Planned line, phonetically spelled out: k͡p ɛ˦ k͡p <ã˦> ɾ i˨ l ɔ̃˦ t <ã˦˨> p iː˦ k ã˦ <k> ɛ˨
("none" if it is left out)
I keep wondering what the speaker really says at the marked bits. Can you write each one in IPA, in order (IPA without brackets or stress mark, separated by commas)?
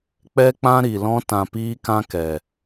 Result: ã˦, ã˧, k